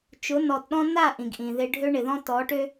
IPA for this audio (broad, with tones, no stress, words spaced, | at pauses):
t͡ʃʊ˨˦nɔ˨tɗɔ̃˦ na˦˨ ʔĩ˨ɡʔĩ˨ðɪ˦ ɖʱø˦ɳɪ˨ðɔ̃˦ tɔ˨˦ʈø˦